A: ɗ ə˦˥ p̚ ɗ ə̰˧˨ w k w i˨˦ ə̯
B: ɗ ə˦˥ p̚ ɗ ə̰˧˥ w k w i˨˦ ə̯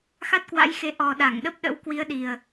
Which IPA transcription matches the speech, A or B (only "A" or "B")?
B